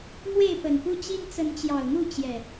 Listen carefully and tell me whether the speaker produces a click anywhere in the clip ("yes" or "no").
no